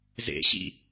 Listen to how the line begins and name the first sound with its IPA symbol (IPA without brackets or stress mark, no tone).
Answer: z